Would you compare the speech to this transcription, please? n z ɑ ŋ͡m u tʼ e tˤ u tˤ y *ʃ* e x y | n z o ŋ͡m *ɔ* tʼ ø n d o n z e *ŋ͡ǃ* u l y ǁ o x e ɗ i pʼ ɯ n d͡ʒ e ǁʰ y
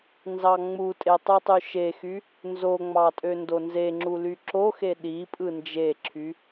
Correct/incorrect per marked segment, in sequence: correct, incorrect: ɑ, incorrect: ŋ͡ǁ

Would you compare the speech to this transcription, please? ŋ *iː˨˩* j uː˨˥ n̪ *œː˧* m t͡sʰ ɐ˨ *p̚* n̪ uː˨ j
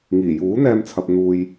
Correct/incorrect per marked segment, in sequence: correct, incorrect: ɛː˧, correct

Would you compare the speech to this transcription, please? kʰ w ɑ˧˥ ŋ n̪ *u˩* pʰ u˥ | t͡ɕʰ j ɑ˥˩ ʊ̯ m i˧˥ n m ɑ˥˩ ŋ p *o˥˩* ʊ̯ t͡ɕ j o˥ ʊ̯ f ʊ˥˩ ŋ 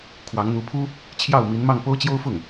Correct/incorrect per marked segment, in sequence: incorrect: u˧˥, incorrect: o˥

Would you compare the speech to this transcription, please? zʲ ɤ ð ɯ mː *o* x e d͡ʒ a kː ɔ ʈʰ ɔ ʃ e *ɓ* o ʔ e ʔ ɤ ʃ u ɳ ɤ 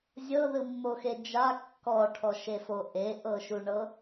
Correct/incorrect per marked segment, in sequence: correct, incorrect: f

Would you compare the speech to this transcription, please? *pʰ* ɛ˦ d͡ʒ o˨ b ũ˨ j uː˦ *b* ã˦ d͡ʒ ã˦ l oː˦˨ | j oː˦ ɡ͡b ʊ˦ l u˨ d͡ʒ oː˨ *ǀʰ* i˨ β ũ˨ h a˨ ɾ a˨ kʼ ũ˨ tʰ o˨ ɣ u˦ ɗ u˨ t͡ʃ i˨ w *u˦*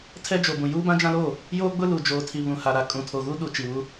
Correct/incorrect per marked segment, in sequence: incorrect: tʰ, correct, incorrect: tʰ, correct

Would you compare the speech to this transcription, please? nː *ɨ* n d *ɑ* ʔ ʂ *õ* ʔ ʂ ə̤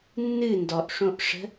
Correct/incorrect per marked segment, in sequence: correct, incorrect: ɔ, correct

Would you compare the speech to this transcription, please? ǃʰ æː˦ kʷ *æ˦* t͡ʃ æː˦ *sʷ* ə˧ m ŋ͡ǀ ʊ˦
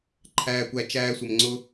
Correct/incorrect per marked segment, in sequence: correct, correct

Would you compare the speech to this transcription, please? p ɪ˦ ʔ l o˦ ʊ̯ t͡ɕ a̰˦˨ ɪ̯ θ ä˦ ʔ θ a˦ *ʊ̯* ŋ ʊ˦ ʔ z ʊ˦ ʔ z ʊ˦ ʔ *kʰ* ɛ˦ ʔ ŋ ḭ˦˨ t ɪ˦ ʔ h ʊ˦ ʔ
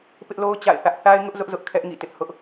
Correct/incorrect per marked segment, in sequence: incorrect: ɪ̯, correct

